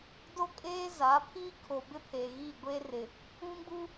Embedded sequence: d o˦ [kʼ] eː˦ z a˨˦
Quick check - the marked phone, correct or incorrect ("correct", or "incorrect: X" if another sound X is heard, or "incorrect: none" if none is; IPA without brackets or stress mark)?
correct